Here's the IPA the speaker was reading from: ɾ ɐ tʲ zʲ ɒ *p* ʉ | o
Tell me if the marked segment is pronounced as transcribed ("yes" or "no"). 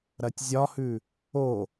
no